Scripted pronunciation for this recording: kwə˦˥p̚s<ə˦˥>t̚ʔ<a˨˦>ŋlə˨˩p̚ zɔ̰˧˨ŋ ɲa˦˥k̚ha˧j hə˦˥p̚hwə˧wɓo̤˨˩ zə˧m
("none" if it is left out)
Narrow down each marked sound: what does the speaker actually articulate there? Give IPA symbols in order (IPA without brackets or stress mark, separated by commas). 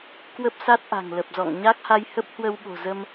a˦˥, a̤˨˩